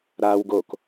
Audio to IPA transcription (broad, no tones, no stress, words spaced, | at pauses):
ɾaw ɡok